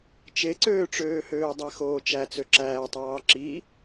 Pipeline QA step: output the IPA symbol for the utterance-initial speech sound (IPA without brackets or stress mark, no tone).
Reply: t͡ʃ